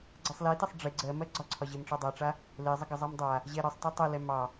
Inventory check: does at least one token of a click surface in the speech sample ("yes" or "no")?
yes